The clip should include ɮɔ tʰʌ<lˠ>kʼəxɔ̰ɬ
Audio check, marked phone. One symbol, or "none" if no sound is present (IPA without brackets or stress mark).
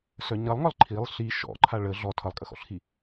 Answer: lˠ